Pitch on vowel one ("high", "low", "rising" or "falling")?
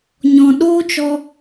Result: low